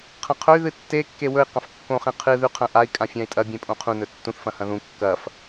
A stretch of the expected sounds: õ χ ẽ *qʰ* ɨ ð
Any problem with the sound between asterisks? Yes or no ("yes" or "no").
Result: no